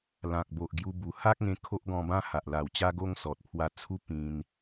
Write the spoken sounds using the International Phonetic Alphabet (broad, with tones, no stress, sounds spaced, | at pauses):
l ã˨ k̚ b o˨ ʔ ɡ j u˧ b u˨˩ h a˦ k̚ ŋ ẽ˧ kʰ o˦ ʔ ɡ ɔ̃˧ b ã˦ h a˨ ʔ l a˨˩ w t͡ɕ a˦ ɡ o˦ ŋ s ɔ˨ t̚ pʰ w a˧ t͡sʰ u˦ p ĩ˧ n